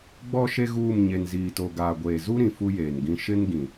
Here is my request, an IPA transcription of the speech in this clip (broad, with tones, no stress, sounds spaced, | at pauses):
ɡ͡b ɔ˦ ʃ e˦ ɣ uː˦˨ m ɲ e˨ n z iː˨ t o˨ ɡ aː˨ ɡʷ eː˨ z u˦ ɾ ĩ˨ f u˦ j eː˨ n ɡ ĩ˦ ʃ ɪ˦ n ɡ ĩ˨